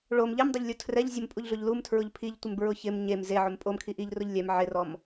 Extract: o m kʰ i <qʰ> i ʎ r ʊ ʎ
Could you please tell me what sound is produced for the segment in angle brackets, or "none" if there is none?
ʔ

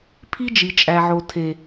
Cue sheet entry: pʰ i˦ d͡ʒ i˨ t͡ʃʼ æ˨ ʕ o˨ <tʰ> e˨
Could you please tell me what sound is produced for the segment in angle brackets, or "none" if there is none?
tʰ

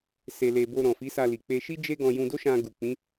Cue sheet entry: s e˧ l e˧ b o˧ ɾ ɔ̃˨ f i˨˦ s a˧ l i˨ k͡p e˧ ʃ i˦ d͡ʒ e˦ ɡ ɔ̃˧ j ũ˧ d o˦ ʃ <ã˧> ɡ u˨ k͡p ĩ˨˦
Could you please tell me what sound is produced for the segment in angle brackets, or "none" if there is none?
ã˧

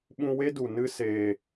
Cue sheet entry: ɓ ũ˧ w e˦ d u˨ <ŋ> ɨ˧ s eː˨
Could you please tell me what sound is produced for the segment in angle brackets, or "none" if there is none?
n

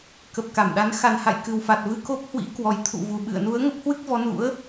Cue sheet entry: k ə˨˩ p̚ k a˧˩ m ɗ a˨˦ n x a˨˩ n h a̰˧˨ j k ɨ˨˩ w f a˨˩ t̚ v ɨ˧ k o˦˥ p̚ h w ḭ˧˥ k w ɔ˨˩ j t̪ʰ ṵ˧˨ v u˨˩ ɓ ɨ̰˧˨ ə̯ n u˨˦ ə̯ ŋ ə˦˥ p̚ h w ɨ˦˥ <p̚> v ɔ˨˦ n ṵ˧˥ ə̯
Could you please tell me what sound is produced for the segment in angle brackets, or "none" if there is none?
k̚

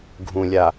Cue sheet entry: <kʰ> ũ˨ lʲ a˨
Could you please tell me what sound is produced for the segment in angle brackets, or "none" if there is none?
ɡʱ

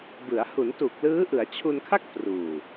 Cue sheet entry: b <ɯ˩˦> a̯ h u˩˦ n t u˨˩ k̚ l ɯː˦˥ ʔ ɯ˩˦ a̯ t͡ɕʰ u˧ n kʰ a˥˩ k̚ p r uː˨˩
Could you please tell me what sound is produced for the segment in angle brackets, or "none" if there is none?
ɯ˩˦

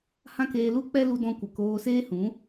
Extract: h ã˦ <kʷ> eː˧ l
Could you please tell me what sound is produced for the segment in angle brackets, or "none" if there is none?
k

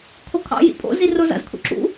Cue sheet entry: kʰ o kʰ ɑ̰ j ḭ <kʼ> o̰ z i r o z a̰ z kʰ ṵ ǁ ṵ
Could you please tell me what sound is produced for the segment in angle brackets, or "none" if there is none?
pʼ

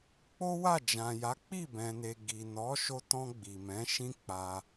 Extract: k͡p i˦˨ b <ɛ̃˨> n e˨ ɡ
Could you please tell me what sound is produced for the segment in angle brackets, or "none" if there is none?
ɛ̃˨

